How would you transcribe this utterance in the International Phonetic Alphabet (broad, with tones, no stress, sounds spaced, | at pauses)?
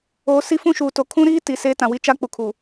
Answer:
oː˨ s i˦ f ũ˦ ʃ uː˨ t o˨ kʰ ũ˦ ɾ iː˦ t i˨ s eː˦ t ã˨ w i˦ t͡ʃ a˦ k͡p u˨ kʰ u˨